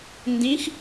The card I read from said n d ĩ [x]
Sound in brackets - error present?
no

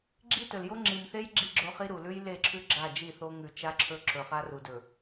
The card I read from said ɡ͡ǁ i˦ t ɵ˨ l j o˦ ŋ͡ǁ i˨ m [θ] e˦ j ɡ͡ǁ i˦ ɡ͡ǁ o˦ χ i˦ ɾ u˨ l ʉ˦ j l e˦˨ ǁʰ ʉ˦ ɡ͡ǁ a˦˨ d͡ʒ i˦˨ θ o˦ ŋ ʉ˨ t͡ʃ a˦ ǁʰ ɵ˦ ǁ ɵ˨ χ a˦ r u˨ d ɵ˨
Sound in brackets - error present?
no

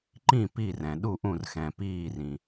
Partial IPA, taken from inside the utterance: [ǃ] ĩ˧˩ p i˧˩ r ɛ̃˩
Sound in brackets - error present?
no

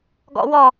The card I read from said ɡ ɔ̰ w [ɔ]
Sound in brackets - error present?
no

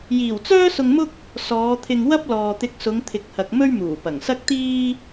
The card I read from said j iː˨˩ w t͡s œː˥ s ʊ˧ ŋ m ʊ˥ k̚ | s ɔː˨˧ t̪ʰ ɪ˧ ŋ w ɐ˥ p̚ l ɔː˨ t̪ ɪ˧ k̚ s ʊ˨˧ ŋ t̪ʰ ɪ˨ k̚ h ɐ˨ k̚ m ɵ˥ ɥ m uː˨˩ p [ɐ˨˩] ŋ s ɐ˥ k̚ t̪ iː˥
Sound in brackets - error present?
no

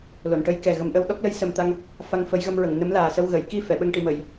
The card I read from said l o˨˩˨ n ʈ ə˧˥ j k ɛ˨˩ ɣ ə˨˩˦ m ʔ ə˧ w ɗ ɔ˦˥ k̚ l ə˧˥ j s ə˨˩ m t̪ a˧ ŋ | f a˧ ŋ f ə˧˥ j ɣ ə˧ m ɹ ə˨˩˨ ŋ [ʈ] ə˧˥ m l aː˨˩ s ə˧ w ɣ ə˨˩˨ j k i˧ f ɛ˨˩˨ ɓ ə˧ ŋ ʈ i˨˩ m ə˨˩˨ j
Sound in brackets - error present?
yes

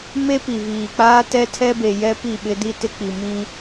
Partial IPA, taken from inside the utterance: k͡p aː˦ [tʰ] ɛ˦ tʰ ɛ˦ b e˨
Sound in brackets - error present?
yes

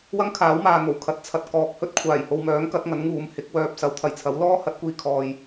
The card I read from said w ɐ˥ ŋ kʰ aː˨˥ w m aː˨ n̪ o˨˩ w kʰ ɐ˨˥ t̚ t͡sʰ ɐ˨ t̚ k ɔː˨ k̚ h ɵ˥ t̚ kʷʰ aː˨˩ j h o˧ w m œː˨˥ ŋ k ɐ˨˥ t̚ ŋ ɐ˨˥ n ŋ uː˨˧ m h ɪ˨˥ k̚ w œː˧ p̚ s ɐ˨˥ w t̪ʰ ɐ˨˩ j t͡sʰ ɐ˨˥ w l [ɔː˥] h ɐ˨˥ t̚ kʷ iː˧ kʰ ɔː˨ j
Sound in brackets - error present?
no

